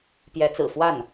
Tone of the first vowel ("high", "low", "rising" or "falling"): rising